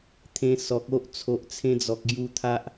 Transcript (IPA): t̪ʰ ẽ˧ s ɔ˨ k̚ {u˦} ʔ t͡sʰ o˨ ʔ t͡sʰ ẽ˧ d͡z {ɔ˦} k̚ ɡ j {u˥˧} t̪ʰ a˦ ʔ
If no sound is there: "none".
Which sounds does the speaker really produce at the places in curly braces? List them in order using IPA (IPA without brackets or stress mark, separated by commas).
o˦, ɔ˨, u˧